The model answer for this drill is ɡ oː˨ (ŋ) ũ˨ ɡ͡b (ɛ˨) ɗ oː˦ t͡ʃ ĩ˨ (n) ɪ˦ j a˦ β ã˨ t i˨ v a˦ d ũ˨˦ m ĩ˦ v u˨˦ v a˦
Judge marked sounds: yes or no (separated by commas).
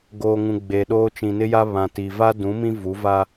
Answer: yes, no, yes